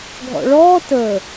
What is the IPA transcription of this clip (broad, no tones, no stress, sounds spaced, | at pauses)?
ɡʱ ɔ̰ ɭ ɔː t ə